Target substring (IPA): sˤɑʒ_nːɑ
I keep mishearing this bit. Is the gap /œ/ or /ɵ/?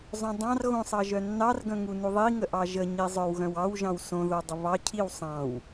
œ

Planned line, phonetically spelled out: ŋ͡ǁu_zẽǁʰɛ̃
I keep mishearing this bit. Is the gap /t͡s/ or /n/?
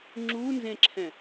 n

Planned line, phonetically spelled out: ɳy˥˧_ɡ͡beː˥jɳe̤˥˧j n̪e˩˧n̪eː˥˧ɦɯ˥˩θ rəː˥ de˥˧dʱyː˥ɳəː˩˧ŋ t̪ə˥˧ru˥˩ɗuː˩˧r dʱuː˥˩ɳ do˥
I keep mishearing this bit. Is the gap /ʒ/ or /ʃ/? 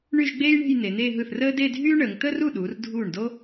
ʒ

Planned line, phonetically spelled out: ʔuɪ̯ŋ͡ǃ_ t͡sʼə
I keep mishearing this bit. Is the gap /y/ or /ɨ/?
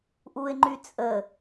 y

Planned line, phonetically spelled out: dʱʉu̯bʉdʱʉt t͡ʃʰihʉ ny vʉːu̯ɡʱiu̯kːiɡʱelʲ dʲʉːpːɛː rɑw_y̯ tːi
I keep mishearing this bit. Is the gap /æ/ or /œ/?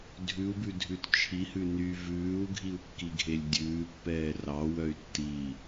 œ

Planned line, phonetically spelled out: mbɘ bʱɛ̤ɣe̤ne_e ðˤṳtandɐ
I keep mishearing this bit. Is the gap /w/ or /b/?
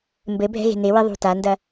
w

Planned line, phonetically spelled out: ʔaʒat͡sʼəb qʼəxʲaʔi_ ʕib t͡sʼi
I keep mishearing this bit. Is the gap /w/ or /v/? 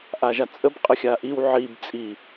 w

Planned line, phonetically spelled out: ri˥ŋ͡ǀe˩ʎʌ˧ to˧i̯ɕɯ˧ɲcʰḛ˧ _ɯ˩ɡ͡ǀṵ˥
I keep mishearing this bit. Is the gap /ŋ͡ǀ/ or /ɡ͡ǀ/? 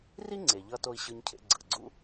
ɡ͡ǀ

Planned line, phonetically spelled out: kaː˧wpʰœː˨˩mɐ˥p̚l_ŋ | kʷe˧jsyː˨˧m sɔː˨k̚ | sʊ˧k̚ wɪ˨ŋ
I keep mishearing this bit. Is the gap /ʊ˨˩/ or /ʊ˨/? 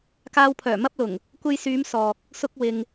ʊ˨˩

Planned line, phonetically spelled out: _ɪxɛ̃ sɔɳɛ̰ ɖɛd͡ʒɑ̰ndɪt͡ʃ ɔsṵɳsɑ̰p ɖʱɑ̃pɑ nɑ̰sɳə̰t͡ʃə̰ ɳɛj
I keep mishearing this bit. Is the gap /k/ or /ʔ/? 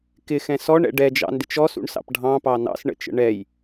k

